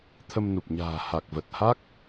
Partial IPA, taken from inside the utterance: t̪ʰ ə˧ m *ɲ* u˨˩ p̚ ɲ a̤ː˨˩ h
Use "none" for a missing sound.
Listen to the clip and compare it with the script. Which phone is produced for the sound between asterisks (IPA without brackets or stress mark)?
n